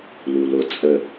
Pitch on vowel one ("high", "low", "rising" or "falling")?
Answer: low